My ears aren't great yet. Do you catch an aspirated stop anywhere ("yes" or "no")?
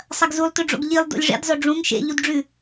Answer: no